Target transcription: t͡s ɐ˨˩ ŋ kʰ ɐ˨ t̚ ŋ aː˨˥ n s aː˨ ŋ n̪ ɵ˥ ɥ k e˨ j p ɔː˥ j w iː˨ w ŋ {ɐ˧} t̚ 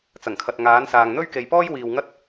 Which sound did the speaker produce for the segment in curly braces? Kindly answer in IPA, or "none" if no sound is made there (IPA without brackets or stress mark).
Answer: ɐ˥